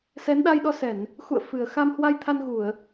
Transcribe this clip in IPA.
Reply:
s ɛ˨˦ n ɗ a˧ j ɗ ɔ˧ s ɛ˧˩˨ n | x ṵ˧˨ ə̯ f ɨ˨˩ ə̯ x a˧ m h w a˧ j t̪ʰ a˧ n ɣ u˧˩˨ ə̯

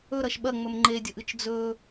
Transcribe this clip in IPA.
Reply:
ɵ ɾ ɐ ʃ ɓ ɐ ŋ͡m ɵ m ŋ͡ǃ e dʲ ɵ ʔ ɨ t͡ʃ d͡z ɵ

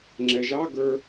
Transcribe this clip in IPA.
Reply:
ŋ͡ǁ ɛ ʒ ɑ ɡ ə˞

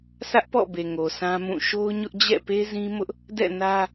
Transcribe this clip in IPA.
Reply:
s ä˦ ʔ p ɔ̰˦˨ b e˨ ŋ o˨ s ã˦ m ũ˦˨ ʃ o˦ ʊ̯ ɲ ʊ˦ ʔ d͡ʑ ɛ̰˦˨ p e˦ z ĩ˦ m ʊ˦ ʔ | d ɛ̰˦˨ n ä˦

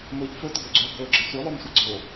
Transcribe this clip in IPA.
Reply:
m ɵ ʎ f ɵ t ɡ ɵ ɡ͡ǀ ɵ ɡ ɵ ɡ͡ǁ ɘ sʷ œ lˠ œ m sʷ a ɡ͡ǀ o

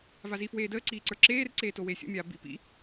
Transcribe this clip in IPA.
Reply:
v a z i f w eː d əː ǀ iː ǀ ə˞ ǁ eː r ǀ eː t o w eː sʲ o̰ mʲ aː b ḭ p ḭ

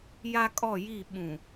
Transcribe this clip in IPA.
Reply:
j a˦ kʼ ɔ˦˨ j i˦˨ ɓ ũ˨

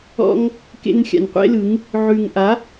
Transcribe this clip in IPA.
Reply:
ɔ̰˦ ŋ | k ḛ˧ n xʲ a̰˨ n qʷ ḛ˦ l ɯ˨˦ ŋ | ʕ ʉ˨ ŋ ʔ a˨˦

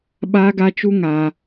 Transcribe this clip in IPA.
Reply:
ɓ aː˦ ɡ a˦ t͡ʃ u˦ ŋ aː˦

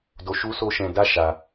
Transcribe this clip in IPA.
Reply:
d o˧ ʃ u˦ s o˦ ʃ ɛ̃˧ d a˦ ʃ a˧

